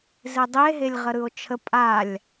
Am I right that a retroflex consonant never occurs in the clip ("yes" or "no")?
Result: yes